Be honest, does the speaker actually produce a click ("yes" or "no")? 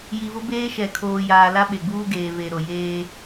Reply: no